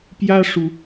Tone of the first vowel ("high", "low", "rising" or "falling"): high